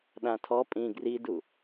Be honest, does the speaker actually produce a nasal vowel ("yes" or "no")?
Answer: yes